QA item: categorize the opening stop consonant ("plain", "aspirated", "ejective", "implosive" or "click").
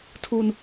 aspirated